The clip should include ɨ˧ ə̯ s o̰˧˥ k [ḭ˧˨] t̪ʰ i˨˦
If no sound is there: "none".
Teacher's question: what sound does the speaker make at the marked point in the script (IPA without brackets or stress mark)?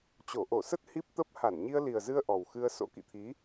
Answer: ḭ˧˨